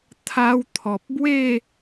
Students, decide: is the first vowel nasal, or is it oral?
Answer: oral